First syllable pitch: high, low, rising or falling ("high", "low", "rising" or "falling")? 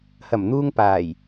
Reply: low